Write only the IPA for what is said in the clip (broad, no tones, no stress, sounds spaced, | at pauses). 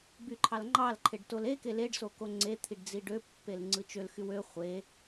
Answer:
b y ǃʰ ɑ l ŋ͡ǃ ɑ l ǃʰ e ɖ t o l e k e l e ɖ s o k o ŋ͡ǀ e t̪ʰ i ɖ d͡z i ɖ ø pː e l ŋ͡ǀ ɯ t͡ʃ ø l x y w ø χʷ e